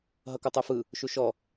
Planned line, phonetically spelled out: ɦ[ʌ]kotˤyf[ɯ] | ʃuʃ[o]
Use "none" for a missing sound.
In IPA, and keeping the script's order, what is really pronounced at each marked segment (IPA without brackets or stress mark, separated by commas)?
ʌ, ɯ, ɔ